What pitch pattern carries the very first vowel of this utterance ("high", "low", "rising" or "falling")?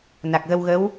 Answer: low